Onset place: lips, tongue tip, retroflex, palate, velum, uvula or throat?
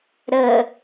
tongue tip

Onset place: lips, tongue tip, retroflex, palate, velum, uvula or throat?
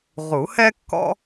uvula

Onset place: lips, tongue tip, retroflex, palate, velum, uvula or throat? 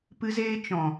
lips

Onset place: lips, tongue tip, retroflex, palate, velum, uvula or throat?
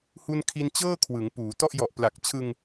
throat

